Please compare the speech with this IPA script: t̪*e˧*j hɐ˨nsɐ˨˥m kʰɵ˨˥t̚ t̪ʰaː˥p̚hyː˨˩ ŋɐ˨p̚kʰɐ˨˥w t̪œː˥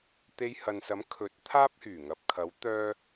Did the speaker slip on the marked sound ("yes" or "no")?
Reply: no